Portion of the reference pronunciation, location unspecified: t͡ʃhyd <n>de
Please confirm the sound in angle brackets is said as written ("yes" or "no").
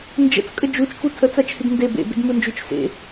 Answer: yes